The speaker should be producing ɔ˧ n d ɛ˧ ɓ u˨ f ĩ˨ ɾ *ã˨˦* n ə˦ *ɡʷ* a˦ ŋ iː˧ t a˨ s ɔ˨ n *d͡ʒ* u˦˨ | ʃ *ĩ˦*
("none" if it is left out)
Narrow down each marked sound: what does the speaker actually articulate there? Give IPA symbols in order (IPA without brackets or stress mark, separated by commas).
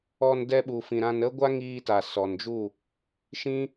ã˧, ɡʷ, d͡ʒ, ĩ˦